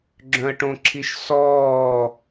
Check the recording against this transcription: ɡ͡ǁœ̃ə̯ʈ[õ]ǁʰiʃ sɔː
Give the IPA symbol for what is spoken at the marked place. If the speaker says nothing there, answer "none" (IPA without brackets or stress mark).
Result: õ